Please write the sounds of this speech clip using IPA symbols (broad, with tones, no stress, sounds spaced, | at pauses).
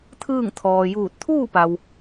t̪ʰ ɯː˥˨ ŋ t̪ʰ ɔː˩ j uː˧˩ t̚ t̪ʰ uː˥˨ p a˩ w